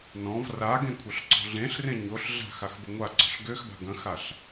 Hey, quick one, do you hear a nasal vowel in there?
yes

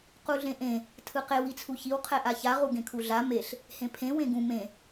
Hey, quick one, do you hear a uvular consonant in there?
yes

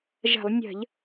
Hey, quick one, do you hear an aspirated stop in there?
no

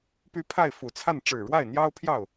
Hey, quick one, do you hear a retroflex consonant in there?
yes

